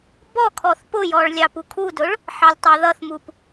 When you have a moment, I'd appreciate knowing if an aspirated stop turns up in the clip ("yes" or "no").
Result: yes